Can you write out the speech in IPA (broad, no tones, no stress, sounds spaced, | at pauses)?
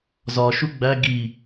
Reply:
z ɒ ʃ u ɡ͡b æ ɡ i